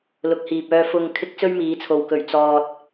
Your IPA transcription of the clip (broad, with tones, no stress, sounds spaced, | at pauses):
l ʊ˨ k̚ h iː˨ p̚ œː˧ f ʊ˧ ŋ kʰ ɪ˥ k̚ t͡s ɵ˥ ɥ m iː˨˧ t͡sʰ o˨ w k ɵ˨˩ ɥ t͡s ɔː˨ t̚